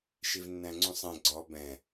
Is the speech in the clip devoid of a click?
no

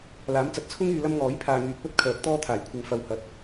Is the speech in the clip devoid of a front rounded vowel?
no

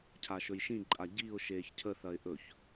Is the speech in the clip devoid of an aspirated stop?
no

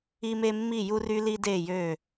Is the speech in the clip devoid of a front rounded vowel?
no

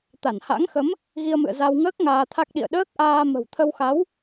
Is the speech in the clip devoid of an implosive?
no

